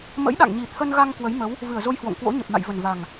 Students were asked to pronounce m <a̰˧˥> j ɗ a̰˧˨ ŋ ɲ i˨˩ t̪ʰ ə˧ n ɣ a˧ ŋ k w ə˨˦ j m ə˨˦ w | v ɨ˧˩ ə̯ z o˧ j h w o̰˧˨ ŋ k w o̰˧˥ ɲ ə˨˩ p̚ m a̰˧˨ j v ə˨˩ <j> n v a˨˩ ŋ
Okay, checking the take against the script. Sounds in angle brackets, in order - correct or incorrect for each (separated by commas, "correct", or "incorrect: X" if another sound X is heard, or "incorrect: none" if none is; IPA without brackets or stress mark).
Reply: incorrect: ə̰˧˥, incorrect: none